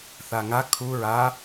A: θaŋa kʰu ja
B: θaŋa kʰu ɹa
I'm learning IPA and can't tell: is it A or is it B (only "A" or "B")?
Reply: B